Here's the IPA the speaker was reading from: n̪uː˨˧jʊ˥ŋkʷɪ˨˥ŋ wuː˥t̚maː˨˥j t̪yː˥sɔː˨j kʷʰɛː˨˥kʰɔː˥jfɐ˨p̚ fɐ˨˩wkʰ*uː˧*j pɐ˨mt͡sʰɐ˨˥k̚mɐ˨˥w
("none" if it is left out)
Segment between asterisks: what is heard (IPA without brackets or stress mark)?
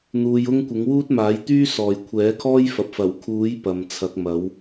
uː˨˥